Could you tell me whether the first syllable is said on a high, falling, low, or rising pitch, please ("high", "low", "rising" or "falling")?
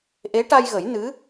rising